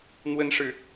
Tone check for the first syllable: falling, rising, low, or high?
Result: high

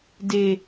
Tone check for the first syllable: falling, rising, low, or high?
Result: low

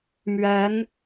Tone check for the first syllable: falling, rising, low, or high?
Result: rising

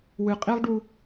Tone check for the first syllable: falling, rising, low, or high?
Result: low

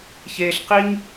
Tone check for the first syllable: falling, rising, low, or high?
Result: high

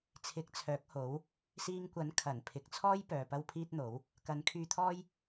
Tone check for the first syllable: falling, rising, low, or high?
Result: rising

